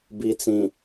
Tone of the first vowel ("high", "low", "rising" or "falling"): low